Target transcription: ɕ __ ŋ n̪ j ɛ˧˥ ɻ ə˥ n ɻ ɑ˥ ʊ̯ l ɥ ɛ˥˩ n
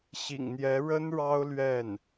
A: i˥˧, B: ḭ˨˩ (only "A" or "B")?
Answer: B